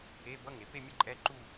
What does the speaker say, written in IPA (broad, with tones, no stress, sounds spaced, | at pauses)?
e˧˥˧ b ʌ˧˥˧ ŋ e˩˧ p e˥˧ mʲ ʌ˥˧ ǃʼ ɛ˧˥˧ ǃ u˥˧